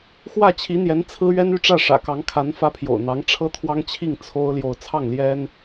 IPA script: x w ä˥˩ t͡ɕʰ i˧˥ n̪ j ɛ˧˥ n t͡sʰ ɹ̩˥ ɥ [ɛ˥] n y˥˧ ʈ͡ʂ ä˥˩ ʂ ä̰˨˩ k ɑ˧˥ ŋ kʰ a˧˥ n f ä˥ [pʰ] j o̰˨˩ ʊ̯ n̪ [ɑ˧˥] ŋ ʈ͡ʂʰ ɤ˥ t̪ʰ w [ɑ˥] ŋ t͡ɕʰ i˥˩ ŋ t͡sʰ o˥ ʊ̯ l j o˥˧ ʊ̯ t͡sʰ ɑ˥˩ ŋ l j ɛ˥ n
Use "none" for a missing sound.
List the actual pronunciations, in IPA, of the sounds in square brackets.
ɛ˥, pʰ, ɑ˧˥, ɑ˥

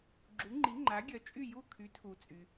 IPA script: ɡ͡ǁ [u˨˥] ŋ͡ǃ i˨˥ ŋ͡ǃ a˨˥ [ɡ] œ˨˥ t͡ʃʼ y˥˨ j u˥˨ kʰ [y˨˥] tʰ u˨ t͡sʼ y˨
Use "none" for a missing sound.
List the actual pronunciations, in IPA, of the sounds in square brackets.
u˨˥, ɡʲ, y˨˥

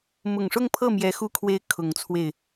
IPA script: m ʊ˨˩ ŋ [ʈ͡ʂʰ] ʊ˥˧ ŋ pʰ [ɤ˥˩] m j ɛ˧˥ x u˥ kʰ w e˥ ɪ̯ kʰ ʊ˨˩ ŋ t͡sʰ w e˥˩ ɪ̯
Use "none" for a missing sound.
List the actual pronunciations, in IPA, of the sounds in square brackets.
ʂ, ɤ˥˩

